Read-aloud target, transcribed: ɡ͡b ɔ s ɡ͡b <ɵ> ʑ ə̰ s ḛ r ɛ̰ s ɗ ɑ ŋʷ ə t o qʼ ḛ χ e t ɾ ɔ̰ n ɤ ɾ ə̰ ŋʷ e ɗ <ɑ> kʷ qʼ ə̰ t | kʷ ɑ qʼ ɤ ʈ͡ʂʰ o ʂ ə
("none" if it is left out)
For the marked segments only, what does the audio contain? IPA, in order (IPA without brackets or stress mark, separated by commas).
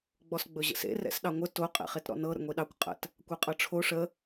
ɵ, ɑ